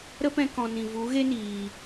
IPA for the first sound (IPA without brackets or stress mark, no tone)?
ɾ